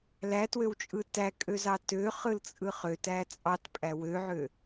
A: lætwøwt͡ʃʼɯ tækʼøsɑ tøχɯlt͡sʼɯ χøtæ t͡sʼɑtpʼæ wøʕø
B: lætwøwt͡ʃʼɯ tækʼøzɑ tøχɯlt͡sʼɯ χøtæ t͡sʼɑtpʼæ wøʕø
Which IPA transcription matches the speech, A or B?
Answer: B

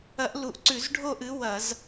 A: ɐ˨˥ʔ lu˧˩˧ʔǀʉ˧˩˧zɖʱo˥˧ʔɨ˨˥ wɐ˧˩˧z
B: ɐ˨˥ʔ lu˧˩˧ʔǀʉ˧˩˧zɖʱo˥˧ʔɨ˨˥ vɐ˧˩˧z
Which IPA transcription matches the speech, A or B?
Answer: A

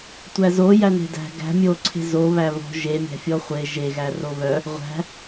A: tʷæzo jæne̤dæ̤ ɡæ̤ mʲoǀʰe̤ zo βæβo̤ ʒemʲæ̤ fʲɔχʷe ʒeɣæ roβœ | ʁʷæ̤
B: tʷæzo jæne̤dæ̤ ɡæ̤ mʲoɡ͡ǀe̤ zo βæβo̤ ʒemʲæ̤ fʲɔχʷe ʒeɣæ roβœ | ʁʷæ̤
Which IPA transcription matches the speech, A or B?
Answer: A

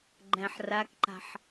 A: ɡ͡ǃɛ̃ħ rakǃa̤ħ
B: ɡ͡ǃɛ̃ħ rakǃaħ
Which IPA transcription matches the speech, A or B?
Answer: A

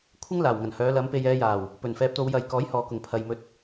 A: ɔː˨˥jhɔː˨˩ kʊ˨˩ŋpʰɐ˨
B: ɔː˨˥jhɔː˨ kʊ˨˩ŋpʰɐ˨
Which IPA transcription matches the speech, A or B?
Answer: B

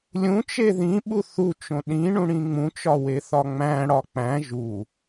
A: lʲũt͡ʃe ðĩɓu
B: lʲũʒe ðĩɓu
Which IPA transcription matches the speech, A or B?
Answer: A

